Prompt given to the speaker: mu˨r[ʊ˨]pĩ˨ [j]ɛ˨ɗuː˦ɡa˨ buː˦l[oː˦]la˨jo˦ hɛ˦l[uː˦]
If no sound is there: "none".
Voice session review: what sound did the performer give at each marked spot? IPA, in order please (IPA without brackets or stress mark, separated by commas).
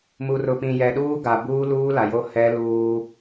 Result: ʊ˨, j, uː˦, uː˦